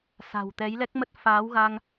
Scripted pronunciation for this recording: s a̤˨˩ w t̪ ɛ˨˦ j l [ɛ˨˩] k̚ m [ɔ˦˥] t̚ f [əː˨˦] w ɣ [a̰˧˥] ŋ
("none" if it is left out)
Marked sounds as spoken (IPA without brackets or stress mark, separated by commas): ɛ˦˥, ə˦˥, aː˨˦, a˧